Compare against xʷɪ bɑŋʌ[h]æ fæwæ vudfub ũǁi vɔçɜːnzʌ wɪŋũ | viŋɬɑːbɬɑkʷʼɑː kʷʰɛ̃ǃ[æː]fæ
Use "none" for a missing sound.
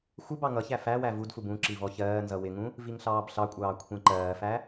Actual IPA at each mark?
ç, ɜː

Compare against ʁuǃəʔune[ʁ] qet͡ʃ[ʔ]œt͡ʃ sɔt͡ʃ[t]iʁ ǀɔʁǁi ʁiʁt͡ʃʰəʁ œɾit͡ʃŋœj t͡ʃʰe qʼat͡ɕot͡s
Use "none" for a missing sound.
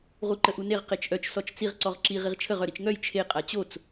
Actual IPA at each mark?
ʁ, ʔ, t͡s

